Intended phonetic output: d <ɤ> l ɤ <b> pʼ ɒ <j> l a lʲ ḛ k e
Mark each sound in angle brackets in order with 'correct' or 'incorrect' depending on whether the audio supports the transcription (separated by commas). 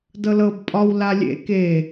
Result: correct, correct, incorrect